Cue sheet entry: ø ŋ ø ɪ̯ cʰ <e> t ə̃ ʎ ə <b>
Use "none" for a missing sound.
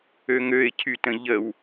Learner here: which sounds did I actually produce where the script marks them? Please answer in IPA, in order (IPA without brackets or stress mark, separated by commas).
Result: y, w